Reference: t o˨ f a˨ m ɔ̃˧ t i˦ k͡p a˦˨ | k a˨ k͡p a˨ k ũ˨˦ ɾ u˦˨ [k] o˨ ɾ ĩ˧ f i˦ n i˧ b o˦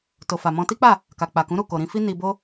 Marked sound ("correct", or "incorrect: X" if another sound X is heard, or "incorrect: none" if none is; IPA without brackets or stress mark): correct